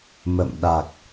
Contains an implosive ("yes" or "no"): yes